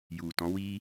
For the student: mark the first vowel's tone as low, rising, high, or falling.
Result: low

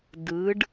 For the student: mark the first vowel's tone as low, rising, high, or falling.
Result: rising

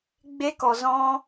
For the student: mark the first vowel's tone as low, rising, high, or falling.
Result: high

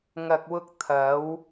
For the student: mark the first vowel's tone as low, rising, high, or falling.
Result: low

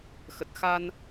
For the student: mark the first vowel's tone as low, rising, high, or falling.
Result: low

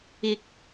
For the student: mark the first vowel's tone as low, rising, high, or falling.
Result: rising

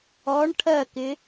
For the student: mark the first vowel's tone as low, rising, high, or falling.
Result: rising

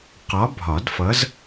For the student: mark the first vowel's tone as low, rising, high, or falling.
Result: rising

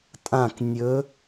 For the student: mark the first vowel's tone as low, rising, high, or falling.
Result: falling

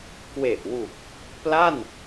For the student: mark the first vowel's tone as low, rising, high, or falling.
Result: low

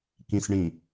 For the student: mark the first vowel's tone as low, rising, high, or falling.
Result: low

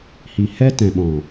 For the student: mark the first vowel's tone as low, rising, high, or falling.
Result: low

